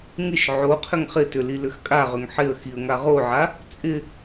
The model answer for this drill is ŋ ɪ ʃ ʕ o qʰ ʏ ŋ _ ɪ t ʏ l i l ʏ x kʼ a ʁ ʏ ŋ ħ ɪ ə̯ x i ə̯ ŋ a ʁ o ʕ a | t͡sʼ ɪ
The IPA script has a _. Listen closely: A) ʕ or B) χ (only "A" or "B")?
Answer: B